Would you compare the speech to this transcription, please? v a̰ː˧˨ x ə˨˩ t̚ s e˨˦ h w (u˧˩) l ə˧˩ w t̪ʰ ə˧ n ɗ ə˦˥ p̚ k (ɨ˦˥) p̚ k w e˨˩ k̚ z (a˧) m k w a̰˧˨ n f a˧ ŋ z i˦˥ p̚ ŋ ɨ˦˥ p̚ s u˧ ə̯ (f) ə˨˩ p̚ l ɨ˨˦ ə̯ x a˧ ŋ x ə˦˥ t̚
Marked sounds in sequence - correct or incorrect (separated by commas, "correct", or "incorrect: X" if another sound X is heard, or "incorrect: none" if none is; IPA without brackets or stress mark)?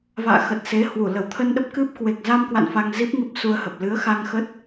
correct, correct, correct, incorrect: h